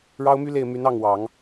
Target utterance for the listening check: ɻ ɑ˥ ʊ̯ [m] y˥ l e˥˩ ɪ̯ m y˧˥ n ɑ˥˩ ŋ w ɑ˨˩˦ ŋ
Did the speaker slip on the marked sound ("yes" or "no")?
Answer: no